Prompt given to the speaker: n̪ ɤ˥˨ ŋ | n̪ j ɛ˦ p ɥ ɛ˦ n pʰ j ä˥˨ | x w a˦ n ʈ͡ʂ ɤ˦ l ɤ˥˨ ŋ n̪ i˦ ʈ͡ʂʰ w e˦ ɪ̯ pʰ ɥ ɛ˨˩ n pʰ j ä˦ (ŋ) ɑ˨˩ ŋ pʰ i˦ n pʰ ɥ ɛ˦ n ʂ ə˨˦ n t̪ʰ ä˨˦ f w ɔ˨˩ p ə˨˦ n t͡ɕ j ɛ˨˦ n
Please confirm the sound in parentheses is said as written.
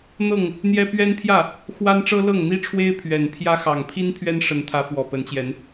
no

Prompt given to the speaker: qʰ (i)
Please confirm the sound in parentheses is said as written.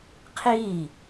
yes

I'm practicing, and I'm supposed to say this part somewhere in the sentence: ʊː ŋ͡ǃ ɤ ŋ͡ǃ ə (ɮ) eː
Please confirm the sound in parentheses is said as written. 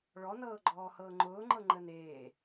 no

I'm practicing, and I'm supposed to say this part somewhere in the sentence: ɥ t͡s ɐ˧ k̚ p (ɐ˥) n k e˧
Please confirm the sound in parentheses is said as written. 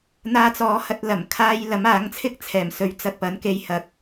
no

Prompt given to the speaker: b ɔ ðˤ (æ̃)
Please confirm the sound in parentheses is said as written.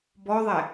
no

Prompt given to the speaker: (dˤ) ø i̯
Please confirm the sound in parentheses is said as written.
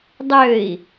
yes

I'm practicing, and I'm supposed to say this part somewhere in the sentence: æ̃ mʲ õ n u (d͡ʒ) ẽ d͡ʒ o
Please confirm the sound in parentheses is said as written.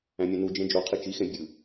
yes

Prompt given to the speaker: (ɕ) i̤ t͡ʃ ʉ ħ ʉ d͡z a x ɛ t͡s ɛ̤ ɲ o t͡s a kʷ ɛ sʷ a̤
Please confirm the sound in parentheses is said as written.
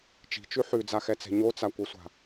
no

